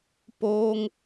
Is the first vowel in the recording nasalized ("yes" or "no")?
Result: no